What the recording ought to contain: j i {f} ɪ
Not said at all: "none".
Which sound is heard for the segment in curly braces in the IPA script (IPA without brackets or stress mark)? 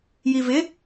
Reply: v